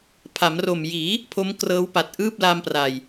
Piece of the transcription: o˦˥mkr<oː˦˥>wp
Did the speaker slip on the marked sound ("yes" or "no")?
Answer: yes